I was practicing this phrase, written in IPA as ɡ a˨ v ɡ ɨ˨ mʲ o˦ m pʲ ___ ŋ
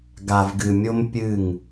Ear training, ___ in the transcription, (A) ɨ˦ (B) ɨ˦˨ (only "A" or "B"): B